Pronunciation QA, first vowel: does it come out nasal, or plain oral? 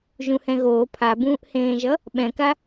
nasal